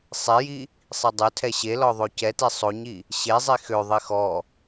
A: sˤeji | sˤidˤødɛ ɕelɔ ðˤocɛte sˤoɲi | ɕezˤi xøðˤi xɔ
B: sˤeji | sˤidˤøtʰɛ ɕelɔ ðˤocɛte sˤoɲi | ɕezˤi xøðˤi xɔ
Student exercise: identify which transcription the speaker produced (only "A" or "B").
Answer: B